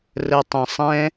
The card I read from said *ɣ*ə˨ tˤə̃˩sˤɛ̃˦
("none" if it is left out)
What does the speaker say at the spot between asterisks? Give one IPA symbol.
r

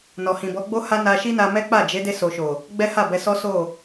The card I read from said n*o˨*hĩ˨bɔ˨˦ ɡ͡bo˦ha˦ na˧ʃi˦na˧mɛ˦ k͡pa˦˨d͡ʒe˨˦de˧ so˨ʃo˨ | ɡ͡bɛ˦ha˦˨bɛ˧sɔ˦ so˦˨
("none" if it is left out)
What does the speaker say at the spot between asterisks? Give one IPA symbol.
ɔ˨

